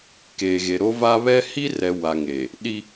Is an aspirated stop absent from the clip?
yes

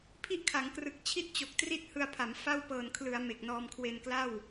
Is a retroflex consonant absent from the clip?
yes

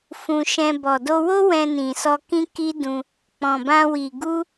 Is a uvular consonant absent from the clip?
yes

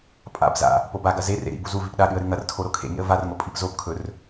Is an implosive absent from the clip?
no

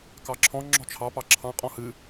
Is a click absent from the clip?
no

